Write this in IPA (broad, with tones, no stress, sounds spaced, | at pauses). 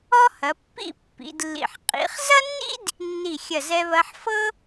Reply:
ɔ˥ h ɐ˩˧ pː ḭ˥˧ pː ḭ˩˧ d lː ḭ˧˩ ħ qʼ ḭ˩˧ χ z ɐ˥ nː ḭ˥ d | nː i˧˩ xʲ ɐ˧˩ z ɛ˧ β ɐ˧ ħ f ɤ˥